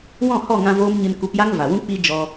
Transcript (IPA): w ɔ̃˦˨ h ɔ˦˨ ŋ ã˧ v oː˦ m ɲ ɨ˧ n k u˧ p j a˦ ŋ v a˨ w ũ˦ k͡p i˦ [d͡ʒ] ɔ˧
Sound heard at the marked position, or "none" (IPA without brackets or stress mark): d͡ʒ